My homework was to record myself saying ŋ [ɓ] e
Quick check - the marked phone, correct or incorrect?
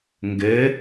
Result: incorrect